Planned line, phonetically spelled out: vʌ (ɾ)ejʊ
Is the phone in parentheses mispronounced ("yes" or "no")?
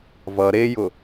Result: no